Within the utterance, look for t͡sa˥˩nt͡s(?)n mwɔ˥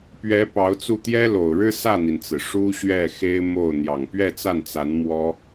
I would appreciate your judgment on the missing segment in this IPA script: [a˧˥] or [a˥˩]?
a˧˥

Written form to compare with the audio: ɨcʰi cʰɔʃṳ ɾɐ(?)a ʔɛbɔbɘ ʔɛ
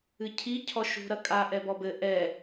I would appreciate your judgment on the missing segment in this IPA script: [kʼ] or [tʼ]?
kʼ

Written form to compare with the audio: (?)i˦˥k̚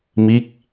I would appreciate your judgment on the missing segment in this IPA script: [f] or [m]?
m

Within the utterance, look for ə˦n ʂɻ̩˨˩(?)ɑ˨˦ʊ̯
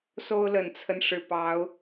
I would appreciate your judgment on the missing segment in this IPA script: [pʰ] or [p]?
p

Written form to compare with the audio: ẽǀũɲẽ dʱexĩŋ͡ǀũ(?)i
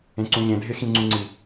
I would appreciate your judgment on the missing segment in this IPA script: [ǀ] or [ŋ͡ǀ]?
ŋ͡ǀ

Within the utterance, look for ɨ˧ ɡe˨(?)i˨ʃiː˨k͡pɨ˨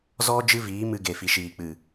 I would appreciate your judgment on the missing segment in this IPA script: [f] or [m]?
f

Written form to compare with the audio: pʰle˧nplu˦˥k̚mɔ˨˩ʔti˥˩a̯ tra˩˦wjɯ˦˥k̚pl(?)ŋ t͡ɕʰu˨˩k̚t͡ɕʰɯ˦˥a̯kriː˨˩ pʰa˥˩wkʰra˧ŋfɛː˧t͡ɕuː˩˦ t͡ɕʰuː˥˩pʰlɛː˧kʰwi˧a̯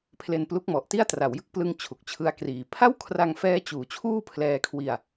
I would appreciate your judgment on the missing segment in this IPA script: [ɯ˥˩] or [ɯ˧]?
ɯ˧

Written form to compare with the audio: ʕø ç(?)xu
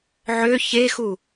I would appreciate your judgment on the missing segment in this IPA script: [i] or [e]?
e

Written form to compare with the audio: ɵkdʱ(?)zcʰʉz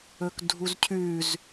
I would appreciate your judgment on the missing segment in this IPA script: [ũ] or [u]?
u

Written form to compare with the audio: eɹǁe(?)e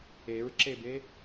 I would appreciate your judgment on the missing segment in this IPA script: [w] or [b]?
b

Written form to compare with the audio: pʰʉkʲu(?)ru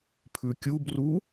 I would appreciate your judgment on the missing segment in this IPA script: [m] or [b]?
b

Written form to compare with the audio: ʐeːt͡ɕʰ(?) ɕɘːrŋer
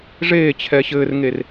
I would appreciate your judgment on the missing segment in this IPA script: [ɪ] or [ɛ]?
ɛ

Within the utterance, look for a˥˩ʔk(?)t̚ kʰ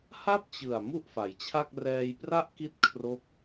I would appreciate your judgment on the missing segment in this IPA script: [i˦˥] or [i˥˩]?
i˦˥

